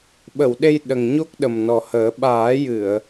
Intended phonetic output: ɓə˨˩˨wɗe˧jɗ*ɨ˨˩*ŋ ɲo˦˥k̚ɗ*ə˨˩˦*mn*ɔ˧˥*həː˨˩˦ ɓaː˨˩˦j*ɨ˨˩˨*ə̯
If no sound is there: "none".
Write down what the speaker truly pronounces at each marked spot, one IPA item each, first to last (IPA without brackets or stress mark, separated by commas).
ə˨˩, ə˨˩, ɔ˨˩, ɨ˨˩˨